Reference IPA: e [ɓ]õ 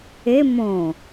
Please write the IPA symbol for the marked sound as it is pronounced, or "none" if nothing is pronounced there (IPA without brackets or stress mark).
m